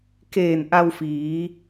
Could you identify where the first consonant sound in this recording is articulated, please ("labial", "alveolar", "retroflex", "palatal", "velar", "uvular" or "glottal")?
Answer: velar